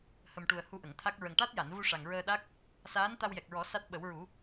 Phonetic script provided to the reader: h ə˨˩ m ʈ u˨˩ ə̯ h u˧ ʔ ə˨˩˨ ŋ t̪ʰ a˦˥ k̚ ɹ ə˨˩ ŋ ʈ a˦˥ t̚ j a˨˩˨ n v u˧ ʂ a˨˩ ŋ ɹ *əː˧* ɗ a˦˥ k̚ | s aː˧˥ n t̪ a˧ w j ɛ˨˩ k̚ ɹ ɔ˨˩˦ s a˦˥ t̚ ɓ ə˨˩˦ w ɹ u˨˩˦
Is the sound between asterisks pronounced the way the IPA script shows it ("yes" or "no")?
yes